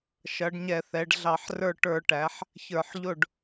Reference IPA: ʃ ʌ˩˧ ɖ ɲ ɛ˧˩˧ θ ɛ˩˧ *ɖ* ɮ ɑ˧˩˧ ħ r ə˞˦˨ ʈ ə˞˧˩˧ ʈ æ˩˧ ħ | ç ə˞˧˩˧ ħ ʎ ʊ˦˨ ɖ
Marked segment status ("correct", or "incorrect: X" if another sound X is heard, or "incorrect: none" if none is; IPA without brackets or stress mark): correct